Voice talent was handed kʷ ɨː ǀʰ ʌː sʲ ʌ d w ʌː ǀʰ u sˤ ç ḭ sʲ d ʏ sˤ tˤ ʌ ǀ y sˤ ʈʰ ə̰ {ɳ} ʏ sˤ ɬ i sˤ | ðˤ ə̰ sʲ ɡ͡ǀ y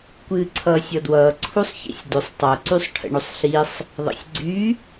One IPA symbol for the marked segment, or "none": ɳ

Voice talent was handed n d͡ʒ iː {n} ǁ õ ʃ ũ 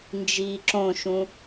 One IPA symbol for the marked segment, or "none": none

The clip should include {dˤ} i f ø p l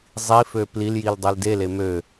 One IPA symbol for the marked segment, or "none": zˤ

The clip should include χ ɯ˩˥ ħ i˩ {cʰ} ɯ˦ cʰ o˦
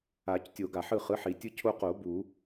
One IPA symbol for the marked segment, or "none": tʲ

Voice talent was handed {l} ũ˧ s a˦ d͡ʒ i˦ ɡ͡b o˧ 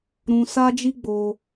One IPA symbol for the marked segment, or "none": ɾ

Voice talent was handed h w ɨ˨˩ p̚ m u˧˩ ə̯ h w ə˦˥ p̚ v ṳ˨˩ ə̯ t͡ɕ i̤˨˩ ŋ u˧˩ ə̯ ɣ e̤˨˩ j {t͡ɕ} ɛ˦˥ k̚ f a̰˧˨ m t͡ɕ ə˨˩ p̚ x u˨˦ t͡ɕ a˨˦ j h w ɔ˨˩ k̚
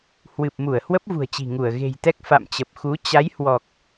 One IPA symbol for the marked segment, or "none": t̪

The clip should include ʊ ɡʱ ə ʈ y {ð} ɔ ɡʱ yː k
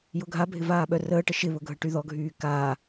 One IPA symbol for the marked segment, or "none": ð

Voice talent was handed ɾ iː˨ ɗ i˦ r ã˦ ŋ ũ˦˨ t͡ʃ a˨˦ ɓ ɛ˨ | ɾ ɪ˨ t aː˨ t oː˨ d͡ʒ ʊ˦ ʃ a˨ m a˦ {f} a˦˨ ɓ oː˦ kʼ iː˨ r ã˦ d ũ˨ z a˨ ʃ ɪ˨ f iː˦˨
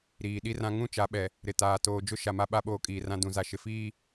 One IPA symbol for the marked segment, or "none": ɓ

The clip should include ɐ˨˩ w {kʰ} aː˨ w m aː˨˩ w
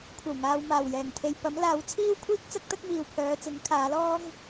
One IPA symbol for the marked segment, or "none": ŋ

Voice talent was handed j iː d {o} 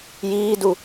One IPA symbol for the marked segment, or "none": u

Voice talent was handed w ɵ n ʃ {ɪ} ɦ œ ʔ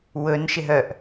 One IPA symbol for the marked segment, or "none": ɪ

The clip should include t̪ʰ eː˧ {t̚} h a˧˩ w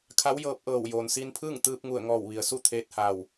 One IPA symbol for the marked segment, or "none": t̚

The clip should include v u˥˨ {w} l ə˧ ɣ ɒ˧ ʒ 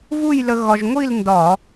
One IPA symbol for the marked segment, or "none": j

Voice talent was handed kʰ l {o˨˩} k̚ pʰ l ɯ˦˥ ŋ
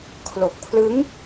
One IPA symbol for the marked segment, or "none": o˨˩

